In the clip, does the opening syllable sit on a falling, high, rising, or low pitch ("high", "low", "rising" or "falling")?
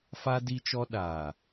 high